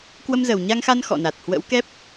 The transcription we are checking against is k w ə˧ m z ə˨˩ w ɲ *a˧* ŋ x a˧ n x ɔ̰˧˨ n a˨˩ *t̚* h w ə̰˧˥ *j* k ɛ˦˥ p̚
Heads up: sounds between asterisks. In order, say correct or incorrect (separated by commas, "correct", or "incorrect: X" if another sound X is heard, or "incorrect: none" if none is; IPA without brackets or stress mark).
correct, correct, incorrect: w